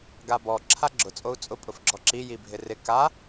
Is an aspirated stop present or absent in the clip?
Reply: present